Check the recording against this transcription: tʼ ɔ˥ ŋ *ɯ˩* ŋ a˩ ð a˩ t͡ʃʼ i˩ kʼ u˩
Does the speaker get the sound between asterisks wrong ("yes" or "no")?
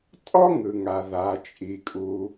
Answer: no